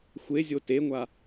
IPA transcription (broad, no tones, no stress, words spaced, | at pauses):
xʷezʲo teŋʷa